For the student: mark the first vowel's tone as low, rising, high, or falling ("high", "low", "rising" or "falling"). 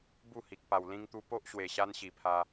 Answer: falling